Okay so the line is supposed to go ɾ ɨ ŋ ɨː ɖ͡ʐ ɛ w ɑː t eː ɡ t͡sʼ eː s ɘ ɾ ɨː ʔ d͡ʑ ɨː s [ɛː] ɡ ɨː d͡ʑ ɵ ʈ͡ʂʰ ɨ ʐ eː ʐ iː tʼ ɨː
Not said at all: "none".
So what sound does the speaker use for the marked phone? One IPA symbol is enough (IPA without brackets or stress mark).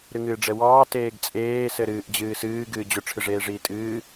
ɨː